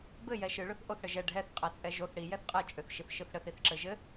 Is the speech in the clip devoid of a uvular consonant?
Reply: no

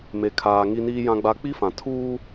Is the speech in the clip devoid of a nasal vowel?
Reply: no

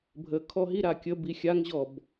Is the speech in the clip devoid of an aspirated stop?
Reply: no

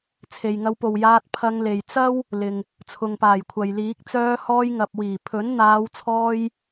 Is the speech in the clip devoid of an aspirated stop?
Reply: no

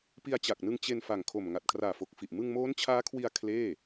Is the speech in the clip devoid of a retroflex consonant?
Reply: yes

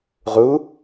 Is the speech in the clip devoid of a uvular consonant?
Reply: no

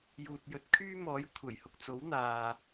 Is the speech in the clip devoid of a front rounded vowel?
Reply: no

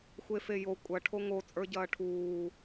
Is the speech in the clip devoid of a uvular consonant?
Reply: yes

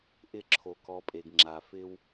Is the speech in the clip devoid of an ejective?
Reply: no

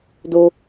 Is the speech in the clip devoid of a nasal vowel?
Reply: yes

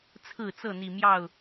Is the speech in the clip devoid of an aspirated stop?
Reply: no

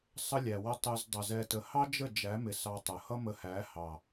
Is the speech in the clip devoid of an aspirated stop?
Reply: yes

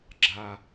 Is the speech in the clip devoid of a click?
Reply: no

